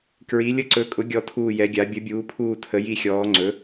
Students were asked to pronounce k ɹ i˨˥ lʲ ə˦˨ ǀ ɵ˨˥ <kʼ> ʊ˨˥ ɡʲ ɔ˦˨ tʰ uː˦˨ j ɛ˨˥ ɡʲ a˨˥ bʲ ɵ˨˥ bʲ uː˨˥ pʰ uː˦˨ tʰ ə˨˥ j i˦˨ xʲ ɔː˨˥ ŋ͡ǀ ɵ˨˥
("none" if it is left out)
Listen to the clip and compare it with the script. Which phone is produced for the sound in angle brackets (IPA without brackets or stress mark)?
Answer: kʼ